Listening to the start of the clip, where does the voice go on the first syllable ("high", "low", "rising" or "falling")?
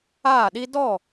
falling